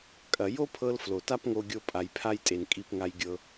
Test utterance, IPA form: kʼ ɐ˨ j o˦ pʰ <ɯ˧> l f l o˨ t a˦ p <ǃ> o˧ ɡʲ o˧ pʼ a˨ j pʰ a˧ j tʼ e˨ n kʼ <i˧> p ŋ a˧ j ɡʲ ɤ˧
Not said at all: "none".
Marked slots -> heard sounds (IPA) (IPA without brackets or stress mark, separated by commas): ɤ˧, ŋ, i˧